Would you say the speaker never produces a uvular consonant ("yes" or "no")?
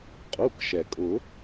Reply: no